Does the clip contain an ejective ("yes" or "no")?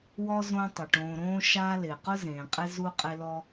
yes